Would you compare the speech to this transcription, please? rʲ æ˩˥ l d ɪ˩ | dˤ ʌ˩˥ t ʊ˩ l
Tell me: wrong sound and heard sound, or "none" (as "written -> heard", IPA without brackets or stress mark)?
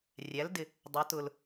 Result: none